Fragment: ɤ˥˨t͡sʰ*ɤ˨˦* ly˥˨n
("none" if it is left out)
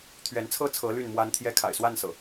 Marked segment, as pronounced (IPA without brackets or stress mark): ɤ˨˦